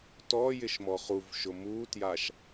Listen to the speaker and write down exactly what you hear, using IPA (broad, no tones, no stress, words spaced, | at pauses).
tɔjɪʃ mɔχuvʃʊ mutjaʃ